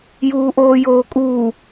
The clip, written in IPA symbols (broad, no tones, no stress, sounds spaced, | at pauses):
j uː ʔ oː j oː kʼ uː